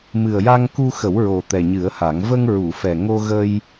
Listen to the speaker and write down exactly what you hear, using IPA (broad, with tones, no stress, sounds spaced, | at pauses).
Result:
m ɨ˨˩ ə̯ j a˧ ŋ k u˧ x ə˨˩˦ w ɹ o˨˩ t̪ ɛ˨˩ ɲ ɨ˨˩˦ ə̯ h a˨˩˦ ŋ v ə˧ ŋ ɹ u˨˩˨ f ɛ˨˩ ŋ o˧ ɣ ə˧ j